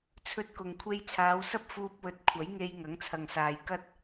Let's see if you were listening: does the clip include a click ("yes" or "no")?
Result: no